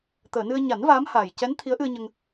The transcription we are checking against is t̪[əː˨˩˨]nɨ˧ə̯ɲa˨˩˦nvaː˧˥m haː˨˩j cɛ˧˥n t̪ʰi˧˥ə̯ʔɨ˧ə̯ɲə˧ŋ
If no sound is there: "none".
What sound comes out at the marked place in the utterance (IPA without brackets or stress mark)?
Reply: əː˨˩˨